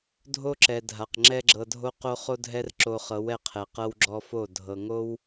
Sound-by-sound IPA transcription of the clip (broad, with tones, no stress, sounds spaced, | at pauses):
dʱ o˦ ǁ ɛ˨ dʱ a˨ q ŋ͡ǁ ɛ˦ ɡ͡ǁ ɤ˧ dʱ o˦ q o˦ χ o˦ dʱ ɛ˦ r ǁ o˧ χ ɤ˨˦ w ɛ˧ qʰ ɛ˨ q ɤ˦ w ɡ͡ǁ ɔ˦ f o˦˨ dʱ ɤ˨ ŋ o˦ w